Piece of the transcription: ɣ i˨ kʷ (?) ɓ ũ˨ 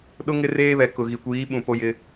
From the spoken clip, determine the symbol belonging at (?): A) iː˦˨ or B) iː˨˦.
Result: B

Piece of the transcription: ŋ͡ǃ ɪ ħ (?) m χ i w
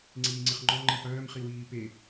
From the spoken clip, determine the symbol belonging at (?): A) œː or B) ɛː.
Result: A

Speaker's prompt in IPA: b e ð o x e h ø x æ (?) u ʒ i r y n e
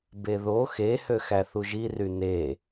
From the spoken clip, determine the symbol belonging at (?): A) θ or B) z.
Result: A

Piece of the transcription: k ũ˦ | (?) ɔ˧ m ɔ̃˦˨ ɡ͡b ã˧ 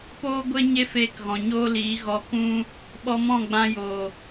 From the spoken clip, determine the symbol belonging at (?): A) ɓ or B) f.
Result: A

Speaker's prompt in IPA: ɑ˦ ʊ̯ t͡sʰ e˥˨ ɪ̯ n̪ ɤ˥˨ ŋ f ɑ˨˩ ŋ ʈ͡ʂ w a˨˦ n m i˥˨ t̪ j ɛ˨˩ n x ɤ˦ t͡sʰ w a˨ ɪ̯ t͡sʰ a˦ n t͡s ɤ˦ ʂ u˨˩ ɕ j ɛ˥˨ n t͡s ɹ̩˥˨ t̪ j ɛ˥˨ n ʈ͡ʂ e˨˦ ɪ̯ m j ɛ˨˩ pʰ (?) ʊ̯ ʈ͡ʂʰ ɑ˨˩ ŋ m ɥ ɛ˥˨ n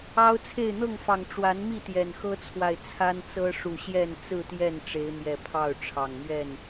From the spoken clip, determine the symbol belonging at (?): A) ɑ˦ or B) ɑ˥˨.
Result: B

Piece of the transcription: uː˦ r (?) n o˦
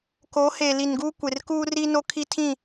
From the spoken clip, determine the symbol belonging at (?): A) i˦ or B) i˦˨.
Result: A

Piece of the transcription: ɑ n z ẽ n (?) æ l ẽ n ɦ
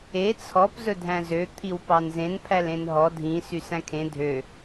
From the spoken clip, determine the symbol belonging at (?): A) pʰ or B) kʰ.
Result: A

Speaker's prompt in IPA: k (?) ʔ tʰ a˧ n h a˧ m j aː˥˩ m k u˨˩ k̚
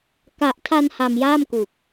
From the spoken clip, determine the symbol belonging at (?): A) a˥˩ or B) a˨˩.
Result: B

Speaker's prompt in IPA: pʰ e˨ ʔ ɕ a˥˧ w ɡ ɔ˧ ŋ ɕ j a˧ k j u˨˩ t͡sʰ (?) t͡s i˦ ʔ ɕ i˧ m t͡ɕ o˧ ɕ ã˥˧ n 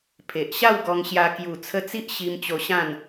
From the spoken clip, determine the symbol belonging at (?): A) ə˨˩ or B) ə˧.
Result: B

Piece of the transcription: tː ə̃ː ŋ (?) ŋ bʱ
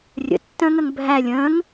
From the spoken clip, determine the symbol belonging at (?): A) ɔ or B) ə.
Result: B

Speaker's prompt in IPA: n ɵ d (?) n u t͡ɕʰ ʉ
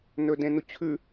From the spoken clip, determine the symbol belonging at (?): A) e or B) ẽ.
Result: B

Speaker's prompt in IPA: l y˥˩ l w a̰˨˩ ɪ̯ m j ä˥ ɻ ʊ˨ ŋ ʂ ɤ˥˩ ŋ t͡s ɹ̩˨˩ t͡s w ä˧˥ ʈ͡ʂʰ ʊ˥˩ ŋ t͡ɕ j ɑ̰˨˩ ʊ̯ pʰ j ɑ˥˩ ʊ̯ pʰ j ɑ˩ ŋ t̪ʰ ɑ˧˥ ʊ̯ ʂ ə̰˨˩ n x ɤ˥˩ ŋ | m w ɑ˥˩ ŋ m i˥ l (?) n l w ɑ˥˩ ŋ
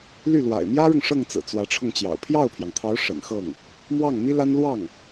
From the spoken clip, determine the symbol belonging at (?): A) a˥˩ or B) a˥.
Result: B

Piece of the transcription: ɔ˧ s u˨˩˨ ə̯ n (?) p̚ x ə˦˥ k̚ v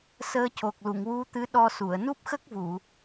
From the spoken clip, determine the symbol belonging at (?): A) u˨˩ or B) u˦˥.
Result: B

